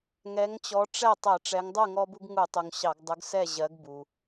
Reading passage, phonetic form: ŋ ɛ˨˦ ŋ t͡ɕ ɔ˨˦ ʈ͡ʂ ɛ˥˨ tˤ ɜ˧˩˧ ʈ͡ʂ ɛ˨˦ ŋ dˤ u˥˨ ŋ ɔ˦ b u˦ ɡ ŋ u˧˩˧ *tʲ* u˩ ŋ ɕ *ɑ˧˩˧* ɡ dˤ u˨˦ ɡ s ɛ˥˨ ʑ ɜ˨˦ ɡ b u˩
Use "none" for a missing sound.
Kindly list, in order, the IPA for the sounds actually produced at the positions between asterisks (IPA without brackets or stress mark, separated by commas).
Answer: tˤ, ɑ˧˩˧